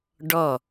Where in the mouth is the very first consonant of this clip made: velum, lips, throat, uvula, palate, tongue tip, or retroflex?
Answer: retroflex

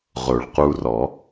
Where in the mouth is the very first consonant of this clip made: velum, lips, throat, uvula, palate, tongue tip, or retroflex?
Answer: uvula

